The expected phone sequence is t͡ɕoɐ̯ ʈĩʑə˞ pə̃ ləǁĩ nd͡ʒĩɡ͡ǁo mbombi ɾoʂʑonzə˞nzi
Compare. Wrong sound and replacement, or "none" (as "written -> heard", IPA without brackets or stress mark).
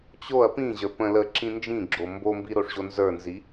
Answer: ʈ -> p